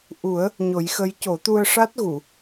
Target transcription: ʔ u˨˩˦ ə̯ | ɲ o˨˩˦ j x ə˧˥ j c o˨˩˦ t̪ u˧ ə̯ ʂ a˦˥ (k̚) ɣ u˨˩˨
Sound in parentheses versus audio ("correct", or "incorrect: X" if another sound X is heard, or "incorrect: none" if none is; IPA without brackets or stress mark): incorrect: t̚